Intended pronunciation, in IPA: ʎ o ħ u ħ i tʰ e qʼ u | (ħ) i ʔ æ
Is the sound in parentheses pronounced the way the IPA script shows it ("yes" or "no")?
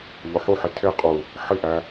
yes